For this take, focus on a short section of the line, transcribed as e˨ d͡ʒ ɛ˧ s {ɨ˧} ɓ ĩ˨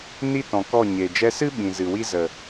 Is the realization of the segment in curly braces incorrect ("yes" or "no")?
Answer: yes